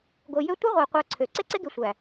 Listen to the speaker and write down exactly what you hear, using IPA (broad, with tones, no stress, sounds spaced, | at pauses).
ɡ o˨ j ø˦ tʷ ɘ˦ ʁʷ æ˨ qʷ æ˦ ǀʰ ø˨˦ ǀ e˦ ǀ e˦ ɡ e˨ sʷ æ˨